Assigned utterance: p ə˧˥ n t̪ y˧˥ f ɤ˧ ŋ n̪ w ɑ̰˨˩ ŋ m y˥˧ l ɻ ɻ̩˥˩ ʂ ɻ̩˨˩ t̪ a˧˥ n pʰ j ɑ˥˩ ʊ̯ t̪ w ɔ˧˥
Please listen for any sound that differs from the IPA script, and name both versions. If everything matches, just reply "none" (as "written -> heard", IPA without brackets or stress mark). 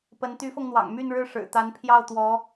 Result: l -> n